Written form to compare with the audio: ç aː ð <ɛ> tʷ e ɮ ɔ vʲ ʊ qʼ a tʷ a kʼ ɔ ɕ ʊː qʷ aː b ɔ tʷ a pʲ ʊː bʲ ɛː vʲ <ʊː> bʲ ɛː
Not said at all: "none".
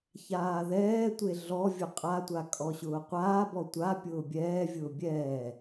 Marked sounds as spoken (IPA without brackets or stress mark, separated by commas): ɛː, ʊː